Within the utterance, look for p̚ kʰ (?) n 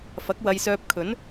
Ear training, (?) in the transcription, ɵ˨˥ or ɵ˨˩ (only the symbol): ɵ˨˥